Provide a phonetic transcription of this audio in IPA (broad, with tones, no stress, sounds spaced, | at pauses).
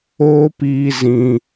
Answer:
oː˦ p iː˧ z ĩ˧